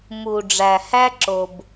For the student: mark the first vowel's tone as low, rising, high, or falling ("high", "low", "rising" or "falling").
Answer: low